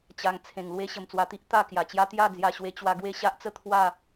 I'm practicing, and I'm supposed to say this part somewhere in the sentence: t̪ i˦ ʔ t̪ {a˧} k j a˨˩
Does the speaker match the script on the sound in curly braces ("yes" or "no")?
no